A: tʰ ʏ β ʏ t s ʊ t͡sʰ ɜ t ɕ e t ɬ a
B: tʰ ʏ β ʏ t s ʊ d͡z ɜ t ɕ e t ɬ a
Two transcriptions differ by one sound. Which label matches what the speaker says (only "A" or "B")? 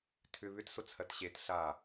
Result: A